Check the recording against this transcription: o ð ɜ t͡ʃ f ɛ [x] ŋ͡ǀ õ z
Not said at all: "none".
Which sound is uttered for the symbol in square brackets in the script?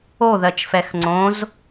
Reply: x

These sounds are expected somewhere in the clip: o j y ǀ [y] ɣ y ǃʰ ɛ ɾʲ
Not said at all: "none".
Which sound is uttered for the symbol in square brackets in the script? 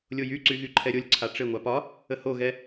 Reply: y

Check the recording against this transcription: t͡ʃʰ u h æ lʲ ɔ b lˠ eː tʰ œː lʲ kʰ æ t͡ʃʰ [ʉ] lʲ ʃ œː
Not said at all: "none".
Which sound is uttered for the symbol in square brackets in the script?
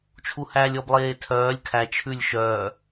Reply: ʉ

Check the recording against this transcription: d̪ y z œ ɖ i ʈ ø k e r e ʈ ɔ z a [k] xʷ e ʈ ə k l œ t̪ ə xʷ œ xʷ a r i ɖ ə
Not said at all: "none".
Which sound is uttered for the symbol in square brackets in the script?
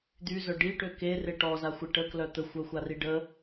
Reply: none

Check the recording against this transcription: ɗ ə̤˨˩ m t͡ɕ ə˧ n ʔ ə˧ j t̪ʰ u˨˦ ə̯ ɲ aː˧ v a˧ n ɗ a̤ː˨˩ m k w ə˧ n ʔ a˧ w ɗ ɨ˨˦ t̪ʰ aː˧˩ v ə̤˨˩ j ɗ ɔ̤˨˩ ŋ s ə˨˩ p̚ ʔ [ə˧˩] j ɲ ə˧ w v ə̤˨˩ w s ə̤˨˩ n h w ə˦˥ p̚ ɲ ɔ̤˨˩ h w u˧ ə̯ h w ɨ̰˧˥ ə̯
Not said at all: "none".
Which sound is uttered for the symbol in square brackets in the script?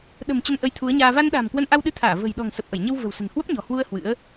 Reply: ə˧˩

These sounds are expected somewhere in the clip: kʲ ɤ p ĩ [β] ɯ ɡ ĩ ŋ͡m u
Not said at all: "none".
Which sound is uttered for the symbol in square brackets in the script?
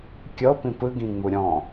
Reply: p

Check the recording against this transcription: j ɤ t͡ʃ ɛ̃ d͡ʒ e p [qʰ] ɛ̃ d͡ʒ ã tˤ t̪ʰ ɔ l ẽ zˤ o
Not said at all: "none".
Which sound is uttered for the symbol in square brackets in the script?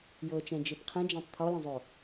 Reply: qʰ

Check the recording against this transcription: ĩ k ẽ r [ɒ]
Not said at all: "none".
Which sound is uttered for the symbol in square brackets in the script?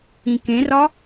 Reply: ɒ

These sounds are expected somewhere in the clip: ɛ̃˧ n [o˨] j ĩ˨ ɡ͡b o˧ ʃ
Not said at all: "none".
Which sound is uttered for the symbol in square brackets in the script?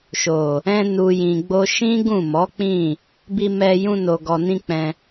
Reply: u˨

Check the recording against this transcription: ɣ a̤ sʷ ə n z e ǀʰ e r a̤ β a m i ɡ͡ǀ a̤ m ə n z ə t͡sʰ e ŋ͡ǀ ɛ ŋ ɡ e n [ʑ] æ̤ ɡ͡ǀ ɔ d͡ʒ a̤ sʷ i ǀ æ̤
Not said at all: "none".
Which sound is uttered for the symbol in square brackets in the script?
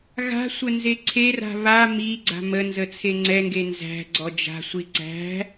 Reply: z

